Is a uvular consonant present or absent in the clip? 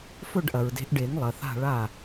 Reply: absent